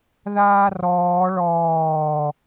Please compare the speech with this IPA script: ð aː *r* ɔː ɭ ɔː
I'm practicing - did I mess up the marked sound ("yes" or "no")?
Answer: no